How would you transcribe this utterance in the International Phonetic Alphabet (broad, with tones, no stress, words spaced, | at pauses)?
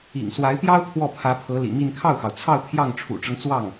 ḭ˨˩ŋ swa˧˥ɪ̯pjɑ˥ʊ̯ t̪ʰwɔ˥˩pʰä˧˥pʰɤ˧˥ lḭ˨˩mi˥˧n kʰɑ˥˩ʊ̯xɑ˩ʊ̯t͡sʰɑ˥˧ʊ̯ t̪ʰjɑ˥˩ŋʈ͡ʂʰṵ˨˩ʈ͡ʂɤ˦ŋ t͡swɑ˥˩ŋ